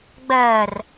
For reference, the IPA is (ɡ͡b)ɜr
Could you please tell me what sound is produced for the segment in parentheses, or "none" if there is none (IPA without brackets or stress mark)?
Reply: ɡ͡b